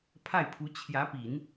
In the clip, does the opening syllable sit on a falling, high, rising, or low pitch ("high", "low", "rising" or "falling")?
falling